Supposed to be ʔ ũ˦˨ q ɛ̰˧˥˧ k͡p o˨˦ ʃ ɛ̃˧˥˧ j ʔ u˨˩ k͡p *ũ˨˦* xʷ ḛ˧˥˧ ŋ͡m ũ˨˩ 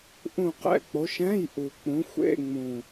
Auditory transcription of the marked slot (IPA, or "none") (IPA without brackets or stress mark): ũ˨˦